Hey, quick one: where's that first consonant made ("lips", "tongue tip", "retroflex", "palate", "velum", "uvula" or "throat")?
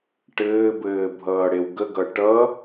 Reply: retroflex